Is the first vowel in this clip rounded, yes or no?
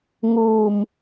yes